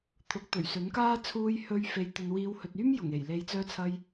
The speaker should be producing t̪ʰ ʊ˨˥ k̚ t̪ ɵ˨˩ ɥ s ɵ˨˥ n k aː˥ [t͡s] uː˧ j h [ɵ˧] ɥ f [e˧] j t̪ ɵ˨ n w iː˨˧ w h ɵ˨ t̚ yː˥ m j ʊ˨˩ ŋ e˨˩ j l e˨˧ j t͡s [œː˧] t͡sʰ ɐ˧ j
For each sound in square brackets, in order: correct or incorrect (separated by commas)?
incorrect, correct, correct, correct